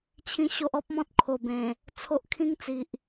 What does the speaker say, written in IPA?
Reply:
t͡ɕʰ ĩ˦ ɕ o˦ ʔ ɔ˦ p̚ m ɔ̃˦ t̚ kʰ o˨˩ b ẽ˨˩ | t͡sʰ o˦ ʔ kʰ ĩ˦ ŋ t͡s i˨ ʔ

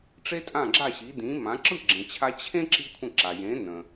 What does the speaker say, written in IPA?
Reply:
ʈ͡ʂ e˥ tʼ ã˥˩ ɡ͡ǁ a˥˩ ɕ i˩˥ d ĩ˩˥ m ã˩˥ ǁ ɯ˥˩ ɡ͡ǁ ẽ˩ t͡ɕʰ a˧ t͡ɕʰ ẽ˥ ǁ i˥ kʷʰ ə̃˥˩ ǁ a˩ j ẽ˩˥ n ə̃˩

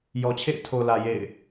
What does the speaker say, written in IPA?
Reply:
j ɔ˨ t͡ɕʰ ḛ˦˨ ɪ̯ tʰ o˨ l ä˨ j ḛ˦˨ ɪ̯

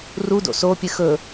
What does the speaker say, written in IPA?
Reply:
r u d o̰ s o pʲ ɨ x ɵ

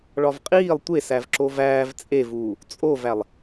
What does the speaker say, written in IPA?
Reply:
ɭ ɒ v qʼ iː lˠ tʷ e s æ v ǁ o v æː v t͡sʼ e v uː | t͡sʼ o v æ lˠ

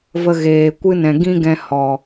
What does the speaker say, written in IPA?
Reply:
v ə˧ ɣ eː˨ kʷ ɨ˦ n ɛ̃˨ ɡ ĩ˦ ɡ ɛ̃˧ h ɔ˨

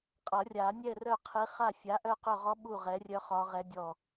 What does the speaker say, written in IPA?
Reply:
qʼ ʌ˨˩˦ rʲ a˨˩˦ nʲ ɛ˥˨ r œ˥˨ qʰ i˨˥ χ a˥˨ fʲ a˨˥ ʔ œ˥˨ q ɵ˥˨ ʁ ɔ˦˥ ɓ u˥˨ ʁ ɛ˨˥ rʲ œ˦˥ χ ɒ˦˥ ʁ ɛ˦˥ dʲ ɔ˥˨

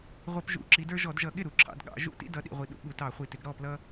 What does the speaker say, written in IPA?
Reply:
ʁʷ ʌ˧˩˧ p ʒ ṵ˧˩˧ ǁ i˩˧ d ə˞˦ ʒ ɔ˧˩˧ d ʒ ʌ˧˩˧ ɠ ɪ˥˩ ɾ u˩ ǁʰ ɑ̰˩˧ d ɠ ɑ̰˧˩˧ ʒ ṵ˥˩ t ḭ˦ d ʌ˩˧ ɗ ḭ˩ ʁʷ i˩ ɗ ṵ˩˧ ɠ u˩ t ɑ˧˩˧ χʷ i˩ t ɪ˩˧ ɡ ɾ ɔ˥˩ p l ʌ˦

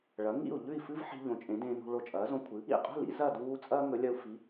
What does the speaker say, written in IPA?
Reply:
ɭ ɐ˩˥ ŋ ḭ˥˩ u̯ ʎ ʉ˥˩ i̯ f ɨ˥ v ħ i̤˧ ʎ õ˩˥ t͡ʃʼ ẽ˩˥ d ẽː˧ n ṳ˧ ɭ o˧ t͡ʃʼ ɐː˩˥ z õ˧ kʷʰ ɨ˩˥ | ḭ˥˩ qʼ ṳ˥˩ l ḭ˥ z ɐ˥˩ d uː˧ t͡sʼ ɐː˥ ŋ ɵ˩˥ lʲ ɐ˧ u̯ f i˩˥

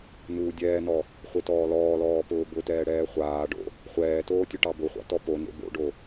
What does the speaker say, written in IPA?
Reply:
n uː dʲ ɛː n ɔ | χʷ e t ɔː l ɔː l ɔː p ʊː b ʊ t ɛː ɽ ɛː χʷ aː ɖ o̰ | χʷ ɛː t oː tʲ ʊ ʈ ɑ b ʊ χʷ ɑ̰ t ɔ p o n ḛ b o̰ ɖ o

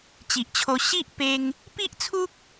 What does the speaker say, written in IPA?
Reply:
t͡ɕ i˨ ʔ t͡ɕʰ o˧ ɕ i˦ ʔ p e˧ ŋ | p i˦ ʔ t͡sʰ u˦ k̚

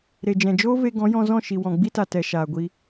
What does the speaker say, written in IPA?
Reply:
ɾ e˨ d͡ʒ ɛ̃˨ d͡ʒ oː˦ v e˧ ɡ ɔ̃˨˦ j ɔ̃˧ z ɔ̃˦˨ ʃ i˨ w ɔ̃˨ ɡ͡b i˦ t a˨ t ɛ˨ ʃ aː˨ ɡʷ i˧

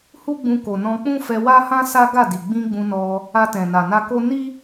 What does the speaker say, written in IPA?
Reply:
h u˦ ɡ͡b ũ˧ k o˨ n ɔ̃˧ k͡p ũ˦ f ɛ˧ w a˦ h ã˦ s a˦ ɡ a˦˨ d i˨ ɡ͡b ĩ˧ ɡ͡b ũ˧ n ɔ˧ | a˧ t ɛ̃˨ n a˨ n a˧ k o˦ n i˦

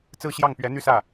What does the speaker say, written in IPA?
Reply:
t͡s ɹ̩˥˧ ɕ j ɑ˥˩ ŋ p ɥ ɛ˧˥ n̪ y˥˧ s ä˥˩

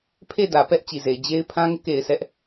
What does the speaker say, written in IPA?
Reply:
pʰ e˦˨ d ä˨ p ɛ˦ ʔ t͡ɕ i˨ z e˨ ɪ̯ d͡ʑ e˦ ɪ̯ pʰ ã˦ ŋ ɪ˦ ʔ k e˨ ɪ̯ sʰ ɛ˦ ʔ

